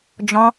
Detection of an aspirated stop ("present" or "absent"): absent